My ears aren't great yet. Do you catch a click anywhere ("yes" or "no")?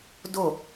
no